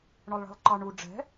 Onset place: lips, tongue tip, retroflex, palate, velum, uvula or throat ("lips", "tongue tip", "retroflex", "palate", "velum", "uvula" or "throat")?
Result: retroflex